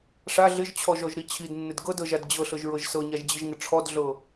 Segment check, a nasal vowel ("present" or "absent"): absent